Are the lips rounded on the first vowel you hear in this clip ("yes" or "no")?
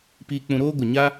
no